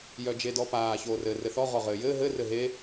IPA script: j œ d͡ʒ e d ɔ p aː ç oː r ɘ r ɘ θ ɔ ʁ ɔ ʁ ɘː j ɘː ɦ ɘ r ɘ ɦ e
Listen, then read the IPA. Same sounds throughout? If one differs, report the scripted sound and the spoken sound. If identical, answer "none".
none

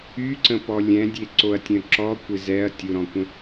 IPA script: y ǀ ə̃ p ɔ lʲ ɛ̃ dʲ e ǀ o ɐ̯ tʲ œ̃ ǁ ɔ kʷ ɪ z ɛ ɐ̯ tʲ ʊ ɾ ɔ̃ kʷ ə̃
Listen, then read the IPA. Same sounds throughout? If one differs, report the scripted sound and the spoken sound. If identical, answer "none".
none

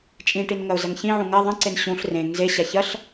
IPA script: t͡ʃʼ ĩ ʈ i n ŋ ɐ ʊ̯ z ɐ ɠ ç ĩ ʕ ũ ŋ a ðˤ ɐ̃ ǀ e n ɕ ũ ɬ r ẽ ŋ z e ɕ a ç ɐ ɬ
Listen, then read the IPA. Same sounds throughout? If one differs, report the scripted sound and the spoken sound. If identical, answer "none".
ɠ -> ŋ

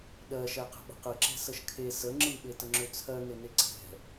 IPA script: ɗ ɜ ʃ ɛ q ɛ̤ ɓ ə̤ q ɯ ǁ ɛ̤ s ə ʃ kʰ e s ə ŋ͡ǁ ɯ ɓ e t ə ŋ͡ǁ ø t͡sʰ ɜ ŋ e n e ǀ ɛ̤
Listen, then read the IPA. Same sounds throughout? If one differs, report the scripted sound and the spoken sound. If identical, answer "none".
none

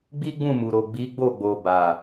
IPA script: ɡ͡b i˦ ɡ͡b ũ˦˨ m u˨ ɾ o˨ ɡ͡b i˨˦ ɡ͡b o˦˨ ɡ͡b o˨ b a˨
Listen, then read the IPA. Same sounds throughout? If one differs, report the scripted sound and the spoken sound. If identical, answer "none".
none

